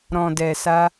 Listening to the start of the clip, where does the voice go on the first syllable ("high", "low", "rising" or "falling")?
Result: low